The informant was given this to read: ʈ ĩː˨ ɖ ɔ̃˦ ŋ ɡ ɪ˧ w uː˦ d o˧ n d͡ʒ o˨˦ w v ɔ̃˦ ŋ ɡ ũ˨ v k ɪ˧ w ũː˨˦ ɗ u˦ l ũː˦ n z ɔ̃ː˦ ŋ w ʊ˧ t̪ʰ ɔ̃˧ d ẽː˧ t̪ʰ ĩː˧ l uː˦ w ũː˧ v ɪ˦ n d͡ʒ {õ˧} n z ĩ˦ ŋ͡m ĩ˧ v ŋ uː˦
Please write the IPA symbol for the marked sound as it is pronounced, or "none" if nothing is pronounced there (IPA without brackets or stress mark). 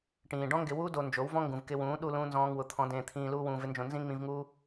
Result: õ˧